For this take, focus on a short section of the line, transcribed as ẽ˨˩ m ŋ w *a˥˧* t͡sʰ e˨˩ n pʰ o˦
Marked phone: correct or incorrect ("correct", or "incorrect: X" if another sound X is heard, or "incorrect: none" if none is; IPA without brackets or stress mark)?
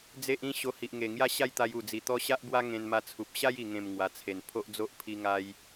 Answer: incorrect: a˨˩